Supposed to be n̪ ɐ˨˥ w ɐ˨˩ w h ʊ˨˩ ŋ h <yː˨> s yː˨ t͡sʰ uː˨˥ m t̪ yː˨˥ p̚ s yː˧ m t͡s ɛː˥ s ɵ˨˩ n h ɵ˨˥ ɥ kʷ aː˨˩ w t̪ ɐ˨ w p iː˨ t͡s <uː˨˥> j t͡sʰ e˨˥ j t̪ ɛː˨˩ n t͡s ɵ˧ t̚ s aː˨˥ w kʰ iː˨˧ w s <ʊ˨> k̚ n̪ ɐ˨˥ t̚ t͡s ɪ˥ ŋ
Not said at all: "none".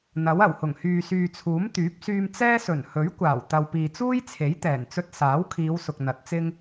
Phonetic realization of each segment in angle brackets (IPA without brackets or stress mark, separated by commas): yː˨, uː˥, ʊ˨